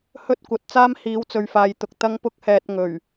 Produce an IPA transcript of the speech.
hɵ˥t̚ kʷɐ˨˥t̚t͡saː˥m hiː˨˧wt͡sɵ˨ɥfaː˨jt̪ʊ˨k̚ t̪ɐ˥ŋpʊ˥k̚ hɛː˧t̚ ŋɵ˨˩ɥ

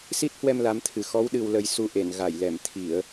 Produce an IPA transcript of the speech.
si˦˥t̚hwɛ˧m la˨˦mt̪ʰɨ˨˩ xɔ˨˦wɗɨ˨˩wlə˨˩j su˧ʔe˧˩n ɣa˧˩jlɛ˧˩m t̪ʰi˧˩˨ə̯

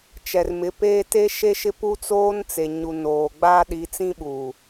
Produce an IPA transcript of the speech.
t͡ʃɛ˨rmɪ˨˦peː˦ te˦ʃe˦ʃɪ˦ pu˦t͡soː˦nt͡se˨ ɲu˨ noː˨ɡ͡baː˦ ɗi˨˦t͡sĩ˦ ɓuː˨

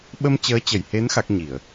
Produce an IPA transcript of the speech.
ɓə˧mt͡ɕəː˨˦t͡ɕə˧˩jhe˨˦n xa˦˥k̚ɲi˧˩˨ə̯

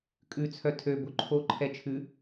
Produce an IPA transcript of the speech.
kʼʉt͡sʰœ tʰø boǃʰo ǃʰɛt͡ʃʰʉ

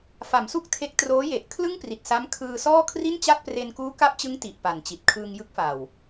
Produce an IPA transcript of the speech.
fa˩˦msu˥˩k̚tʰe˦˥k̚ troː˦˥je˨˩ʔ kʰlɯ˥˩ŋpri˨˩t̚sa˦˥m kʰɯː˧sɔː˥˩ kʰri˥˩nt͡ɕa˥˩t̚pre˧n kuː˦˥ka˦˥p̚t͡ɕɯ˦˥ŋ ti˨˩ʔ pa˨˩n t͡ɕi˨˩t̚kʰɯː˧ŋjɯ˦˥k̚fa˨˩w

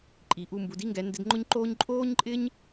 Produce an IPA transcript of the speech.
ǃʼi˩ʔu˧mbu˩˧d i˥ŋɡɛ˩˧ ndɪ˧dŋ͡ǃʊ˥ɲ ǃoː˥ɲ ǃʼoː˥ɲǃʼɪ˥ɲ

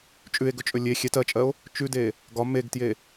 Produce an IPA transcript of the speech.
t͡ʃʼʉe̯ɡɵt͡ʃʼɵ lʲe xʲɛt ɜt͡ʃʼɜo̯ | t͡ʃʉde | ɡɒ meɡtje

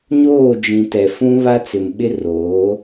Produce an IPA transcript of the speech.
ɲoː˦˨d͡ʒĩ˨ tɛ˨fũ˦ βa˦t͡sɪ˨m ɓɪ˦ roː˨˦

